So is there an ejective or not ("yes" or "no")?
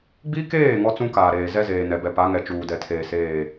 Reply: no